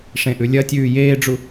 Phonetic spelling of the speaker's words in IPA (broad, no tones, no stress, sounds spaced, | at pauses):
ʂ ẽ ʔ ʉ lʲ ɐ tʲ ʉː j eː ɖ͡ʐ u